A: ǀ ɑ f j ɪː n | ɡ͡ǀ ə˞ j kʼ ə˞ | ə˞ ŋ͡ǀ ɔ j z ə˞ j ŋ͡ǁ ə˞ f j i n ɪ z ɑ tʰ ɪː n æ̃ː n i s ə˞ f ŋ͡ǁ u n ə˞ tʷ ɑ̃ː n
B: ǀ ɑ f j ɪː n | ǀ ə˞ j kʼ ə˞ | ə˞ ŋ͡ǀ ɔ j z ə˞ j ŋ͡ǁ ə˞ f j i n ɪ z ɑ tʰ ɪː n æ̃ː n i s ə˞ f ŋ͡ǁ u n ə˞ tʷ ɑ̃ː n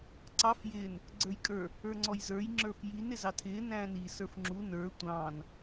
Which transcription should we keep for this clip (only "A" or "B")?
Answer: A